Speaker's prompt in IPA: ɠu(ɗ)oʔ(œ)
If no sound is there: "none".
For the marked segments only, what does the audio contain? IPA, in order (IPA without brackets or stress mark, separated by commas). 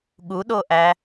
ɗ, æ